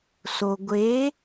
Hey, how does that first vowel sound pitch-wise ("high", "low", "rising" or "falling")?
low